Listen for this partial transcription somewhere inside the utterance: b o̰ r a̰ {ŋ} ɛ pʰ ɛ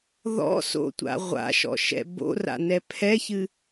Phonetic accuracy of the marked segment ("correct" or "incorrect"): incorrect